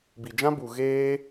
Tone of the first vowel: low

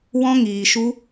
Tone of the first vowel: high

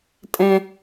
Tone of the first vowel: low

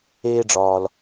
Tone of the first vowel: high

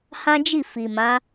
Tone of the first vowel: high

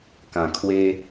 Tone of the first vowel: low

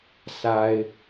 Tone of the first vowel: low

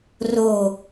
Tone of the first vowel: low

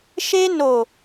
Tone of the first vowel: high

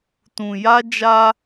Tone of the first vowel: low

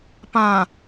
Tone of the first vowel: low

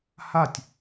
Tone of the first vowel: falling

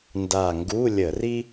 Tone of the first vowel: low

